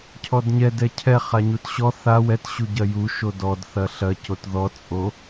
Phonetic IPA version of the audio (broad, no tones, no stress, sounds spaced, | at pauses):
cʰ ɔ d ɲ ɛ d ɛ cʰ ɛ χ a ɲ u t ɕ ɔ θ a w ɛ t ɕ u ɟ ɐ j u ʃ o d ɔ d θ ɐ ɬ ɐ c o t ð ɔ t͡sʼ o